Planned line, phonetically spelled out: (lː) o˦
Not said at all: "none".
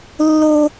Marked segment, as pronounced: lː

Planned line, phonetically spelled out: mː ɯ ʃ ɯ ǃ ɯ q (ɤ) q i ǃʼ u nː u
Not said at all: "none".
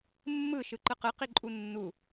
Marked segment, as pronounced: ɯ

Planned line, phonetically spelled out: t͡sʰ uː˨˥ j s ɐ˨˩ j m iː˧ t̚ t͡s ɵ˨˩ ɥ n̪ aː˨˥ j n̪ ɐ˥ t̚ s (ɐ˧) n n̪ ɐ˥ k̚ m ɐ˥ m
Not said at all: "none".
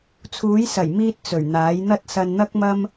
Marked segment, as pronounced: ɐ˧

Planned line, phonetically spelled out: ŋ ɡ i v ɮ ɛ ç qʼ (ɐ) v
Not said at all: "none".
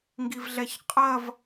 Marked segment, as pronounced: ɐ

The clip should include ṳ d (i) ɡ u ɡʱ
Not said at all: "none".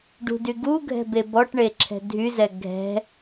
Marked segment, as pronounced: y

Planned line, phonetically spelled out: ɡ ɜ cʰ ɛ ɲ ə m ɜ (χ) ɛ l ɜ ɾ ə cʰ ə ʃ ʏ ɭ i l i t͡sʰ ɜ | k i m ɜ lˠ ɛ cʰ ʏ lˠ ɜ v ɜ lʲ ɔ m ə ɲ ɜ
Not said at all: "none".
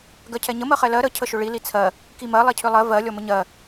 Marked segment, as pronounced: χ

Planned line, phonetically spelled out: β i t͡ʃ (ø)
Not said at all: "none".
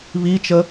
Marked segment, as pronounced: ə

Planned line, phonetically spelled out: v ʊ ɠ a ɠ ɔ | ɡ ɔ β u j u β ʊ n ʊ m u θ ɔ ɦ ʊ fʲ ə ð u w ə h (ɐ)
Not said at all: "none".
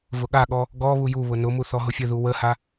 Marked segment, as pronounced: a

